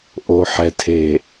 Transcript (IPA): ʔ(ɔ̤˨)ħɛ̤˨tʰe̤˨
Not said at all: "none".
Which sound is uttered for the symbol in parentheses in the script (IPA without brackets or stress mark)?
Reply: o̤˨